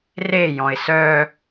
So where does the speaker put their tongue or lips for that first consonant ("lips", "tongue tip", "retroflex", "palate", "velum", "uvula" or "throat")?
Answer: tongue tip